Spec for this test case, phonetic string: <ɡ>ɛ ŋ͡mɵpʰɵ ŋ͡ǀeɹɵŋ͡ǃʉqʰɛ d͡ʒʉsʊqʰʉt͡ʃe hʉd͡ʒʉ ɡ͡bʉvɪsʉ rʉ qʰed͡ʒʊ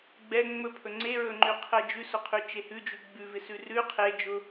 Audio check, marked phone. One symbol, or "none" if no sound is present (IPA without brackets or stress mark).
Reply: ɡ͡b